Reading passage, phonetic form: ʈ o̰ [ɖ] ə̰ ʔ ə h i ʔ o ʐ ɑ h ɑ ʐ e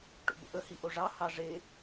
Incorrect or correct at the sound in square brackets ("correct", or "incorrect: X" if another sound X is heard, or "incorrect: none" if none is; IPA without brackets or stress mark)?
incorrect: b